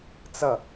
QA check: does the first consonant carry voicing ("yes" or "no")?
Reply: no